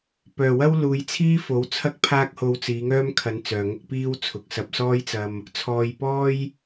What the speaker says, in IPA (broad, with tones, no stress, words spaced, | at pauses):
pœː˨˩wɐ˥w luː˨˧jt͡sʰiː˥ fo˨˥wt͡sʰɐ˥k̚pʰaː˥k̚ ho˧wt͡siː˨˧ŋœː˥mkʰɐ˨˧n t͡sœː˨ŋʊ˥k̚ piː˥w t͡sʰʊ˨k̚sɐ˧p̚sɔː˥jt͡sɐ˧m | t͡sʰɔː˨jpɔː˥j